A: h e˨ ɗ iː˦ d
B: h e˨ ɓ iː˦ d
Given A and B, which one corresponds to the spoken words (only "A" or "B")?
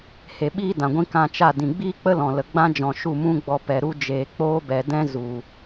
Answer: B